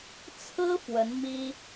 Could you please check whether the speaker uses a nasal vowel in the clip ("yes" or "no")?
no